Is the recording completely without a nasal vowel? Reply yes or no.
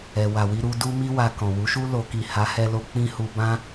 no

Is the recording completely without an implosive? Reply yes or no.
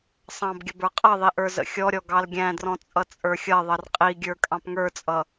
yes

